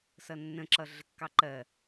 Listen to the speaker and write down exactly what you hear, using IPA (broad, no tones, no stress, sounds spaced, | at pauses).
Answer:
s ʌ nː ə̃ ǁ ʌ ɮ ə kː ɑ ǃ ɜ